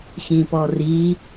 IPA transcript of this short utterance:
ɕ ĩ p ɔ r i

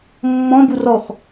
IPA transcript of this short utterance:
mː ɔ̃ b u r ɔ x

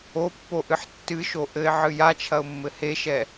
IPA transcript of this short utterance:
o pː o ʔ ɨ ħ tː ɨ ʃ o ʔ ɘ ɪ̯ ʕ ɨ j a t͡ʃʰ ɐ ʊ̯ mː ɘ h e ʃ ɛ

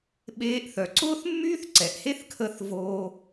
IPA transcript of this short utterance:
ɓ eː˧ ʔ θ œ˩ ǀ ʊː˥ θ mː yː˥ θ ǀ ɛ˩ ʔ h e˥ θ kʰ əː˧ θ v oː˧

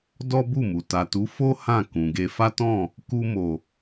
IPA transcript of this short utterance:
d ɔ˦ b u˦˨ m u˨ t a˨ t u˨˦ f o˦ h ã˦˨ k ũ˨ ɡ e˧ f a˦ t ɔ̃˦˨ | k u˧ m o˨

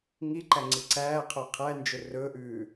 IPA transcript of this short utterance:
ŋ i ǃ æ ŋ͡ǀ i ǀ æː qʰ œ qʰ æ n d͡ʒ ɵ r ɵ ʔ ʉː

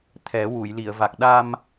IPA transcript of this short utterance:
t̪ʰ ɛ˨˩˦ w u˨˩˨ j l i˨˩˨ ə̯ v a˨˩ k̚ ɗ a˧ m

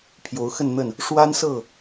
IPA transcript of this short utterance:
pʰ j o˨˦ ʊ̯ x ə˥˨ n n̪ ə˥˨ n | ʂ w a˦ n s ɤ˥˨

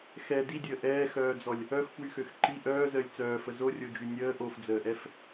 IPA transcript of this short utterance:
x ɛ d i dʲ əː ʔ ɛː x œː d͡z ɔ lʲ | œ x f w y x ø x ǃ i ʔ œː z əː lʲ t͡s œː f ə z o rʲ o d͡ʒ y nʲ əː ʔ o f d͡z əː ʔ ɛ f

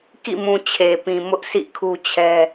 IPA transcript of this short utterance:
k ḭ˦˨ m ũ˨ t͡ɕʰ e˨ p ĩ˨ m ʊ˦ ʔ sʰ ḭ˦˨ kʰ u˦ t͡ɕʰ ɛ˦

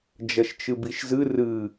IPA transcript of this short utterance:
d͡ʒ ɐ ʃ t͡ʃ ɨ b i ʃ z ɨ r ɨ

